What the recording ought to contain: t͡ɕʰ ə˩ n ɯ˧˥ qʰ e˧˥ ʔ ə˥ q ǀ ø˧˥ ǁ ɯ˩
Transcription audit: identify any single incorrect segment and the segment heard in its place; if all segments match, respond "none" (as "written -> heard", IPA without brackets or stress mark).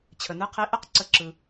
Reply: ø˧˥ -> ə˧˥